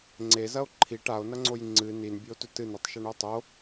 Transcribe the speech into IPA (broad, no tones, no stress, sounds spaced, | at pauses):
ŋ͡ǀ e z ɐ o̯ ǃʰ i ʈ a o̯ n ɐ ŋ͡ǀ o j ŋ͡ǀ ɨ n i n bʲ ʉ o̯ t ɵ t ɨ n e tˤ ʃ ɐ ɳ u o̯ tˤ o